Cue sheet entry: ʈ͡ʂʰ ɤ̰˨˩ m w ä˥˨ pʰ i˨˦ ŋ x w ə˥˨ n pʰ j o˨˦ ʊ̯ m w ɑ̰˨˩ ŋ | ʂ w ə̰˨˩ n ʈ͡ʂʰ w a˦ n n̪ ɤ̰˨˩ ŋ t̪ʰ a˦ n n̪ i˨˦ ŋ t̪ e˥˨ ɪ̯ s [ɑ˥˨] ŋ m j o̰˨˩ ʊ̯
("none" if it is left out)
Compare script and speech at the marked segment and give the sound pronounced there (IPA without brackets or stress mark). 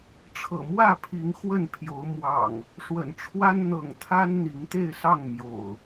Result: ɑ˥˨